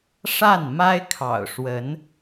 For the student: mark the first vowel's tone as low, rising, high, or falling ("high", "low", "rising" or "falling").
falling